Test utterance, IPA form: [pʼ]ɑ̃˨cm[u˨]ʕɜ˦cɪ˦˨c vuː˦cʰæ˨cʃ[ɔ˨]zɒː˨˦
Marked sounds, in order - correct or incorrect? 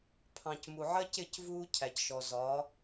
incorrect: pʰ, correct, correct

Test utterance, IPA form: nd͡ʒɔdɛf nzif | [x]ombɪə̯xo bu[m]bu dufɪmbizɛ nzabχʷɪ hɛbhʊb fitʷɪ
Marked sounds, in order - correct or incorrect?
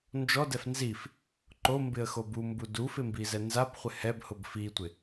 incorrect: ǃ, correct

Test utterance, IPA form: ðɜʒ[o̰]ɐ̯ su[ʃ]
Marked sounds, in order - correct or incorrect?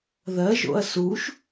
correct, correct

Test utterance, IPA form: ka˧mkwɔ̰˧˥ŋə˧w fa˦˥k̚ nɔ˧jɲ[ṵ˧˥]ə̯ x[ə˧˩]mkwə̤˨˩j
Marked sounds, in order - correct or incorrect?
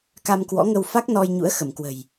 correct, correct

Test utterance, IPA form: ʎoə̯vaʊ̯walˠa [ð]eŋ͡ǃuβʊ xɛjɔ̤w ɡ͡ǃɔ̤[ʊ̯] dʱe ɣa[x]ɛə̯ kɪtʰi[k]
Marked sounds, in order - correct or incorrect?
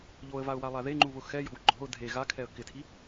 correct, correct, incorrect: kʰ, incorrect: none

